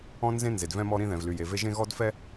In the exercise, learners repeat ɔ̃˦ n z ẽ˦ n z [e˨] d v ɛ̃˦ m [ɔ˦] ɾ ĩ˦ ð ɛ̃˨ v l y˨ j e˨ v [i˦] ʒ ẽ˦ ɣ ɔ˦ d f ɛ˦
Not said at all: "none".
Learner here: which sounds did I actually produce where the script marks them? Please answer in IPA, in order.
e˨, ɔ˦, e˦

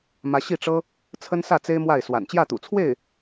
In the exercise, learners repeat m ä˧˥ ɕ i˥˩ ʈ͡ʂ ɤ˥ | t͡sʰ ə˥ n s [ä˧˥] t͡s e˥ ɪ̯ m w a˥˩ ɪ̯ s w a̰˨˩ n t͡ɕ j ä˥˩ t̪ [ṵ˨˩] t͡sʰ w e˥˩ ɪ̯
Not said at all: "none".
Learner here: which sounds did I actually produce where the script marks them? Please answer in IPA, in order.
ä˥˩, ṵ˨˩

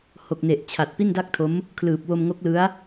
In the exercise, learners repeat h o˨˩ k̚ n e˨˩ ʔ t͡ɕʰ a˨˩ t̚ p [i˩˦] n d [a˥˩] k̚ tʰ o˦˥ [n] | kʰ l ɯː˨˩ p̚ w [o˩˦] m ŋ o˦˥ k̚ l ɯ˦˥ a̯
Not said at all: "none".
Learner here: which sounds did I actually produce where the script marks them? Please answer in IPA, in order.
i˥˩, a˥˩, m, o˧

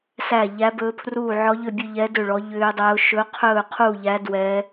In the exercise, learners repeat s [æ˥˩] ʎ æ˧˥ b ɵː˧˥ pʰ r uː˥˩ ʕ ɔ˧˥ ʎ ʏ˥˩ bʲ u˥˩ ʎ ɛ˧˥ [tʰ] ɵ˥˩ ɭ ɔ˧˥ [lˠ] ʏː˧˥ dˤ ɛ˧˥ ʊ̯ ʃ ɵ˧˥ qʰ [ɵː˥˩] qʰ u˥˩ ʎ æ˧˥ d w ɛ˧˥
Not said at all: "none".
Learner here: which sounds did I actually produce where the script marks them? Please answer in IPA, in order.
æ˥˩, d, ʎ, ɵː˥˩

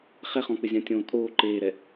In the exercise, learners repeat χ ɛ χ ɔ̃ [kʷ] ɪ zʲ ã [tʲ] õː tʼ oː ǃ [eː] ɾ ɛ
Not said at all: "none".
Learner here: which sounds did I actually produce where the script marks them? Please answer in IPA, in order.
k͡p, tʲ, eː

